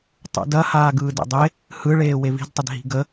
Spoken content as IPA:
tˤṵdɐ haːɡɯːdḛdˤe | hɯɭeː wevi̤dtˤəd ɦi̤ɡə

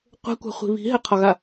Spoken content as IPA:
qʷɛ̤kʷa̤χʷi̤ βi̤ɦɛqʰɒɣa

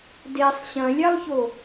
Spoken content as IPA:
desˤ ɕɐ̃lʲalˠço

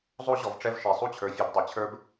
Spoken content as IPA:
zˤo˦ ʑɔ˨vʈ͡ʂɛ˦v ʃe˨sˤu˦t͡ɕʰə˞˨fʲɨ˨b dˤe˨t͡ɕʰə˞˦b

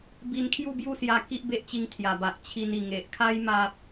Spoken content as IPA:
bi˧nkʰju˥˧bju˥˧sja˧ ki˦ʔbe˦ʔt͡ɕi˧ŋ t̪ʰja˨˩ba˨ʔ t͡ɕʰi˧ni˨˩ŋe˨ʔ kʰa˦j ma˦p̚

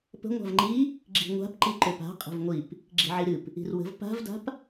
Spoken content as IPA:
pə̤ ŋʷa̤vŋ͡ǃi | ɡ͡ǁi̤ŋʷa̤p ǃiǃøpa̤ qʼə̤vŋʷip | ɡ͡ǁi̤ʕiɾɨp | i̤rwə̤v pa̤vda̤p

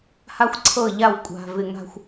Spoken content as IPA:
ha˦xʷǀʰɤ˦˨ʎa˦˨w kʷʼa̤˨ vɪ˨ŋa̤˦xʷ

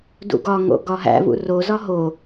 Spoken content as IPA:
dṵɡɒŋo̰ ɡɒɦæ̰vṵ rozɒ ɦo

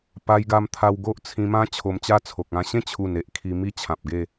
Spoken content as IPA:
pa˧jɡa˧mt̪ʰa˧w ɡo˦ʔt͡sʰĩ˧mã˦ t͡ɕʰo˧mt͡ɕa˦t͡sʰo˨k̚ ã˧ ɕẽ˥˧t͡ɕʰu˨˩ne˨ʔ kʰi˧ mi˥˧t͡ɕʰã˨p̚ɡe˥˧

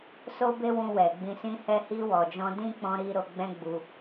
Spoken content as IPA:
so˦be˦wũ˧wɛ˨ ɡ͡bĩ˧sĩ˦hɛ˦ hi˧wɔ˨d͡ʒɔ̃˧dĩ˦ k͡pɔ̃˦ɾi˦ ɾo˧ɡ͡bɛ̃˦ ɡ͡bu˧

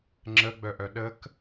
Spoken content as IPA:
ŋ͡ǁəɡ͡bœʔœ ɗək

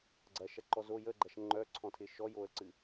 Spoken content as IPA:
ɡ͡ǀɐʃɐǃɔz o jəɡ͡ǃɐʃ ŋ͡ǃœǀʰɔ̃tʰɪ ʃɔjoə̯ǀɨ

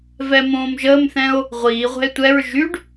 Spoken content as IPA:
vɛmõːmʒəːmθɛ̃o̯ | ʁʷiːʁʷɛ̤e̯ tʷɛɹ ʒyɖ

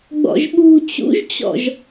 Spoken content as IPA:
ɡ͡bɔ̰ʒɓṳ t͡ɕṵʒt͡ɕɔ̰ʒ

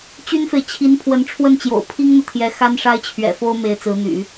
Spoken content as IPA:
t͡ɕy˥nfe˨ɪ̯ t͡ɕʰi˧˥n pʰwə˧˥nʈ͡ʂʰwə˥˩nt͡ɕjo̰˨˩ʊ̯ pʰi˥ŋn̪ɤ˨t̪ʰjɛ˧˥ xa˥nʂa˥ɪ̯t͡ɕʰɥɛ̰˨˩fo˥ʊ̯ me˧˥ɪ̯t͡sɹ̩˧˥n̪y̰˨˩˦

